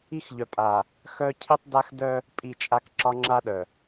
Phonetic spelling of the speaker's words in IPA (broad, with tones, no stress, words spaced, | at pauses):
i˦xʎœ˨pʼa˨ | xœ˦ cʰi˦tˤda˦x dœ˦ | pʼi˦˨t͡ʃʼa˦k ǁɒ˦ŋ͡ǁa˦ɗœ˨